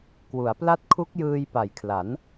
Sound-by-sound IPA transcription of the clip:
k w u˩˦ a̯ p l a˦˥ t̚ kʰ u˦˥ k̚ j ɯː˧ j p a˨˩ j kʰ l a˩˦ n

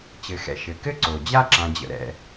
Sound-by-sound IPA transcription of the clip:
t͡ɕ ɘ˩ x ɛ̰˨ ʃ ɘ˩ k ɘ˥ ǀ o˩ d͡ʑ a˥ ǁ ã˨ d͡ʑ ə̰˨ ɾ ɛ̰˨

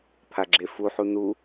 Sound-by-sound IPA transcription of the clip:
pʰ a ɡ͡ǁ e f u ħ u n u

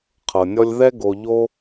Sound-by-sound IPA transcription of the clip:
qʰ ɤ˩ nʲ ɔ˦ lʲ ð ɛ˦ ɡ o˨ ʎ o˦

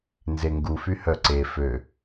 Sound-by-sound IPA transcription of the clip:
n z e ŋ ɡ u f y h œ ǀ e f ø

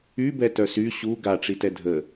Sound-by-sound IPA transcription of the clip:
y b ɛ t œ s y ɕ u ɡ a ʈ͡ʂ i t ɛ dʱ ə

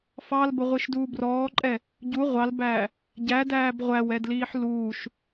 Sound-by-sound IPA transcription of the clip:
f ɑ l b ə ʁʷ i ʃ d uː b r ɔː ǃʼ ɛ | ɟ u ʁʷ ɑ l b æː | ɟ æ d æː b ʁʷ æ w ɛ d l iː ħ l uː ʃ

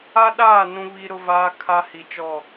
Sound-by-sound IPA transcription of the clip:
a˦ ɗ aː˦˨ n ũ˦ β i˦ ɾ ʊ˦ v aː˦ kʰ a˦ h i˨ t͡ʃ ɔ˦˨

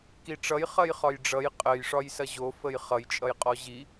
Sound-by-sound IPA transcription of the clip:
k i ʈ͡ʂ ʌ j χ ɐ j χ ɒ j ɖ͡ʐ ʌ j qʼ ə j ʂ ɒ j s ɐ ʑ o f ə j χ ʌ j t͡ʃʼ ʌ j qʼ ɔ ʑ i

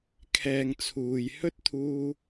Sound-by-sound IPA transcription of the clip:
kʰ ɛː˧ ŋ t͡sʰ uː˨ j h ɵ˥ t̚ t̪ʰ uː˧

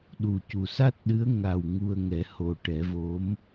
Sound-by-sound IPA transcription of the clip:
ɗ u˨˩ c u˨˩ s a˦˥ t̚ ɗ ɨ˧˥ ə̯ ŋ a˨˩ w ŋ u˧ ə̯ ŋ ɛ˨˩˦ h o˨˩ ʈ ɛ˨˩˦ v o˧˥ m

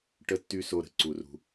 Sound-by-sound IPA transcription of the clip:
ʈ ə˨ tː y˨ s o˨ ɾ ə̤˧ ǀ u˧ r ṳ˧

